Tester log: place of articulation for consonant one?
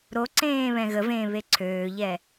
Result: alveolar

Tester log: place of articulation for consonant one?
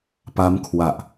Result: labial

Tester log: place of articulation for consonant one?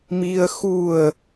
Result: labial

